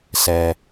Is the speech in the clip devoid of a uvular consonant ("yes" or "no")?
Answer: yes